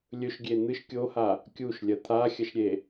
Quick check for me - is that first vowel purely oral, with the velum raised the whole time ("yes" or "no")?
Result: yes